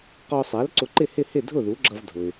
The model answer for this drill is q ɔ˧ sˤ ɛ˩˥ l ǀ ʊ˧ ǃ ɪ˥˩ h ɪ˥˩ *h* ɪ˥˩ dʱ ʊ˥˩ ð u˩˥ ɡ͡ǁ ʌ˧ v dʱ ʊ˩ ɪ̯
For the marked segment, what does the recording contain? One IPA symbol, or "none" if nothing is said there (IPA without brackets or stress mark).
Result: h